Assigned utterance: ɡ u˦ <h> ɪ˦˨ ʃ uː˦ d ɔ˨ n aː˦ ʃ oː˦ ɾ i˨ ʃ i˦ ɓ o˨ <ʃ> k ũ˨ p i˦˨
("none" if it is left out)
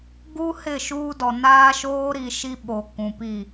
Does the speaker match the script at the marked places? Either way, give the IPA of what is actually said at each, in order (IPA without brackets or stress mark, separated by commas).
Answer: h, none